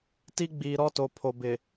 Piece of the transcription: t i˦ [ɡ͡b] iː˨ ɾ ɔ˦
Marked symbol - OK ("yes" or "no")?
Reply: yes